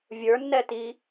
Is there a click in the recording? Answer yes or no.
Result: no